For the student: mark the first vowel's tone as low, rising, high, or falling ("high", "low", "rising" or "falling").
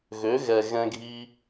rising